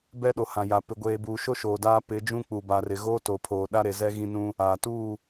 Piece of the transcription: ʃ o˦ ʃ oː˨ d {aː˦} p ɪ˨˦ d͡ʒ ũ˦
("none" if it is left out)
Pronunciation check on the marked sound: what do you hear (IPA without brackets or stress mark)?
aː˦